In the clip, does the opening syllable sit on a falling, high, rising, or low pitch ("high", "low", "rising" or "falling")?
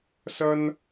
high